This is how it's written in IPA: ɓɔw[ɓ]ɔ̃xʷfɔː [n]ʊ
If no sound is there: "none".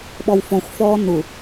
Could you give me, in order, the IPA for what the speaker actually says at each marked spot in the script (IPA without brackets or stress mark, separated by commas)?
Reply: f, n